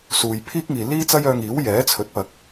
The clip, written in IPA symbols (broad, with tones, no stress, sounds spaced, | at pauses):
s uː˨ j pʰ iː˥ k̚ ŋ iː˨ l iː˥ t͡s ɐ˥ j œː˧ ŋ iː˨˥ w j ɛː˨˥ t͡sʰ ɵ˨˥ t̚ p ɐ˨˥ k̚